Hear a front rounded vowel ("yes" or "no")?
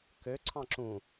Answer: yes